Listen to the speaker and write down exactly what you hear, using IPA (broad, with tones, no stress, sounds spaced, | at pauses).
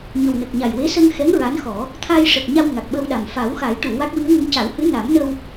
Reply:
ɲ ə˨˩ w n ə˨˩ k̚ ɲ a˨˩ j w e˧˥ s ə˧ ŋ x ɛ˧˥ ŋ ɹ a˧˥ n x ɔ˨˩˦ | t̪ʰ a˧ j ʂ ə˨˩ k̚ ɲ a˧ w ŋ a˨˩ k̚ ɓ ə˧ w ɗ a˨˩ m f a˨˩˦ w x a˨˩˦ j ʈ u˨˩˨ w a˦˥ k̚ w i˧˥ ə̯ ŋ ə˧˥ ŋ c a˨˩˦ w h ɨ˧˥ n a˨˩˦ m n ə˧ w